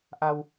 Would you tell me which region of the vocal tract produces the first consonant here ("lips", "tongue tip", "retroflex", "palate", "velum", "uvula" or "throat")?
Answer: throat